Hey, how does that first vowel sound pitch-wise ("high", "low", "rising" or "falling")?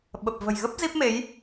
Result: low